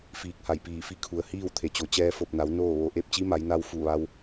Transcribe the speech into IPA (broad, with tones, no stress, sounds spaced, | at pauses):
f iː˧˩ k̚ h a˧˩ j p iː˧˩ f i˧˥ kʰ u˩ ə̯ h iː˥˨ w t̪ʰ e˩ t͡ɕ o˩ t͡ɕ ɛː˧ f o˧˩ p̚ n a˩˧ w n oː˥˨ ʋ o˧ ʔ e˥˨ p̚ t͡ɕ i˧˥ m a˩˧ j n a˧ w f u˧˩ ʋ a˧ w